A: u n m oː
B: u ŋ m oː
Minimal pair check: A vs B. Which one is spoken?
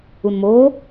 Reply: A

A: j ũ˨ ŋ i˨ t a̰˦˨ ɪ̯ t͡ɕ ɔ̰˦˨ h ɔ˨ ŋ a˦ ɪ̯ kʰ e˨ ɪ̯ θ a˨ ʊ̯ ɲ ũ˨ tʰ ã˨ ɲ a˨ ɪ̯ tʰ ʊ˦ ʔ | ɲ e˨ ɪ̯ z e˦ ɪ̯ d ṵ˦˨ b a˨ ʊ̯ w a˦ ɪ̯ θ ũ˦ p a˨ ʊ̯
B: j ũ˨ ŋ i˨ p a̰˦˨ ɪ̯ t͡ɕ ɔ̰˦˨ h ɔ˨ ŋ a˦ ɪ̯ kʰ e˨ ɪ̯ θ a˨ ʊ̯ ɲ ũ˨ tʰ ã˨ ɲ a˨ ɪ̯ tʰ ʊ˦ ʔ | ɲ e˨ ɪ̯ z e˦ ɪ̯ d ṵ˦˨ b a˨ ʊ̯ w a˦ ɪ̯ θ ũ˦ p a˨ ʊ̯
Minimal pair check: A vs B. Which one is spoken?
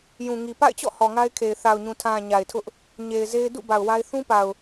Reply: B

